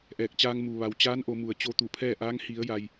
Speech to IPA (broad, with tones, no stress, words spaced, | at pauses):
ʔɛː˧˩k̚t͡ɕaː˧ŋ muː˩ʋa˩w t͡ɕaː˧˥nʔo˩˧mu˩ə̯ t͡ɕo˧t̪u˧˩pʰɛː˥˨ʔaː˧˥ŋ hi˩˧ə̯ ja˩j